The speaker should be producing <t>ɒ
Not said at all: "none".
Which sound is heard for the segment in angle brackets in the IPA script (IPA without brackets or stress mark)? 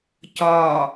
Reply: c